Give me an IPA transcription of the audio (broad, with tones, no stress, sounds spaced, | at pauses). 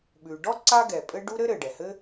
ɓ ʉ˩ ɖ ɔ˥ ǀ a˥ ɡ ɛ˩ pʼ ɘ˥ ɖ u˥ ɾ ɘ˥ ɾ ɘ˩ ɖ ɛ˩ h ɘ˥